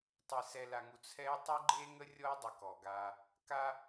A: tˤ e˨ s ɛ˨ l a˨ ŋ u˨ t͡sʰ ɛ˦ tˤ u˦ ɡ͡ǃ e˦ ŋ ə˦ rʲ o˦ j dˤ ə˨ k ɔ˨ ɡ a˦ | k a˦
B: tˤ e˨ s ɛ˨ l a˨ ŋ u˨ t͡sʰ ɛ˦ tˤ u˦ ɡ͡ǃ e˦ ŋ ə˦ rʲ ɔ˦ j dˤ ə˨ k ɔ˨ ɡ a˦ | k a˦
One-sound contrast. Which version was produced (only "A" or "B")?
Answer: B